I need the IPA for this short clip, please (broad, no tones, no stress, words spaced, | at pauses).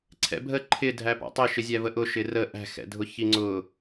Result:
ǀʰɛ̰bʱə ǃʰɪ dʱæpɑ̰tˤɪ ʃɪzʲævəʔʊ ʃɪrə ʔæ̤xɛ̰dʱʊ çiŋ͡ǀʊ